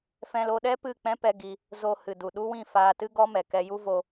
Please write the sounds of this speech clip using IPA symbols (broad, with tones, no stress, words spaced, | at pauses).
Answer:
fɛ̃˧lo˧ɗɛ˦ pɨ˦˨k͡pɛ̃˦pɛ˧ ɡi˧ | zo˧ hɨ˨du˨ ɗu˦wĩ˦˨ faː˧tɨ˦ ɡɔ˦mɛ˨kɛ˧ ju˦vo˧